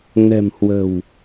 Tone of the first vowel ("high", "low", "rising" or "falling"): low